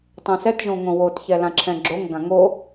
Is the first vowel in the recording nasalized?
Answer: yes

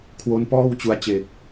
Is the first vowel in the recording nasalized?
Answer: no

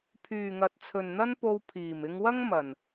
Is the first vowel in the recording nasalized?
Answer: no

